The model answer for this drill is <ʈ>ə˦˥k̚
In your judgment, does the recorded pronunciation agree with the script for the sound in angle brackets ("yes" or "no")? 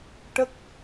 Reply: yes